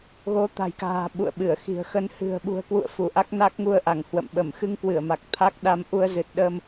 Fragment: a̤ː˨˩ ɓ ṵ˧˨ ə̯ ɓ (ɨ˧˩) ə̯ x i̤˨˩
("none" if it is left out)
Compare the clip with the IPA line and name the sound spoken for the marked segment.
ɨ˧˩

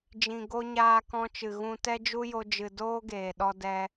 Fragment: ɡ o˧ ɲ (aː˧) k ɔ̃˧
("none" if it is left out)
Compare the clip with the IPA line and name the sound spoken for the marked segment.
aː˧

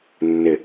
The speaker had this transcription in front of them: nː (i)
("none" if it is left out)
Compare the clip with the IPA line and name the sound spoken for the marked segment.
ɪ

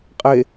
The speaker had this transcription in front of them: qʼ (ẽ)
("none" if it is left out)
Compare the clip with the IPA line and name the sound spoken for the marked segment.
e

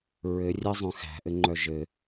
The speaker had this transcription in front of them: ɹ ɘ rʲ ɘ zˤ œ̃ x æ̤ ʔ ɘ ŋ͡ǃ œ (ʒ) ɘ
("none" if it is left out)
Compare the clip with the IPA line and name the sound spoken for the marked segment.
ʒ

